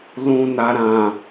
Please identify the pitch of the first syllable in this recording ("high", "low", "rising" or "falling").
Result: low